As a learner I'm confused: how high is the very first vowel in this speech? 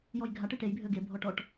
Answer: mid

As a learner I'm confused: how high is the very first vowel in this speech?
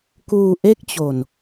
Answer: high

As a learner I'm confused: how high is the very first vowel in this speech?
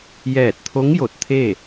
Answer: mid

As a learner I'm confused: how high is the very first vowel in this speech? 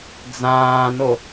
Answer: low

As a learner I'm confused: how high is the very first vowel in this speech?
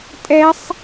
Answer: mid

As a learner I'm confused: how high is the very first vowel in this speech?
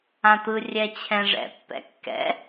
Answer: low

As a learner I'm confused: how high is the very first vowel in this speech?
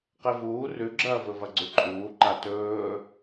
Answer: mid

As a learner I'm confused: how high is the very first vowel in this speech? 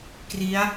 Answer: high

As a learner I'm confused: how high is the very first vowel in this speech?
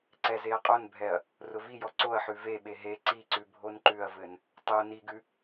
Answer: mid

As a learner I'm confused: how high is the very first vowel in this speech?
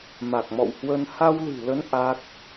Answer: low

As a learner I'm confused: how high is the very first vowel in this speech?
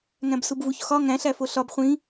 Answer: low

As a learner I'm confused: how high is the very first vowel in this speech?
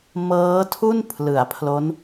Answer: mid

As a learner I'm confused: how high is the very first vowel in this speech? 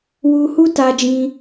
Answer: high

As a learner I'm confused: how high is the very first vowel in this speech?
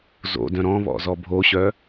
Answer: mid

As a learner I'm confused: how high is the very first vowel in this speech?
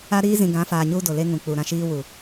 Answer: low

